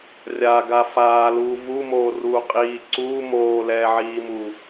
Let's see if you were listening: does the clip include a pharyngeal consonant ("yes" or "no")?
yes